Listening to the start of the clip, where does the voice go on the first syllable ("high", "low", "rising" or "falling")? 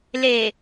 low